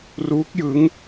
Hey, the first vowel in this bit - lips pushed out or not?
yes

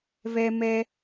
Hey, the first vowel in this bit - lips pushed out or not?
no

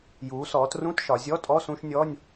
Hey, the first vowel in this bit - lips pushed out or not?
yes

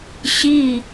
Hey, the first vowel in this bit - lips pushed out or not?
no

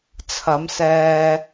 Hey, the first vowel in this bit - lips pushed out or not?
no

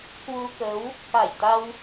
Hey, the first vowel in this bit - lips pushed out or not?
yes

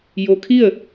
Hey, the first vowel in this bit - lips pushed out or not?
yes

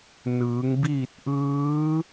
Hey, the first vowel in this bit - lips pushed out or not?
no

